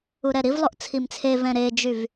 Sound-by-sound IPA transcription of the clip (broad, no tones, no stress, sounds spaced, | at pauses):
u ɾ ɛ ɾ i v lˠ o ʔ t͡sʰ i m t͡sʰ e v ɛ̃ ɾ e d͡ʒ y v